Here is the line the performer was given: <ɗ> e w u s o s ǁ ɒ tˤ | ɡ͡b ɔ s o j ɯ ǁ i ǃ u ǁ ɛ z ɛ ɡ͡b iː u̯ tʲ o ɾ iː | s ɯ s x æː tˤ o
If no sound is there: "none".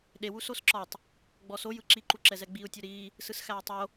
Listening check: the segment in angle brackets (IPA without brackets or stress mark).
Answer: ɗ